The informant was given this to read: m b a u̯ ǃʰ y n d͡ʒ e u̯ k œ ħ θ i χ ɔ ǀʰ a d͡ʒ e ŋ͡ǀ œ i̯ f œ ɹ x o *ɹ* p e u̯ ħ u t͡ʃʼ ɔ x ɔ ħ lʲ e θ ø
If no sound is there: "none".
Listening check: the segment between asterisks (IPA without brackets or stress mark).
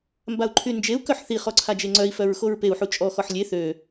ɹ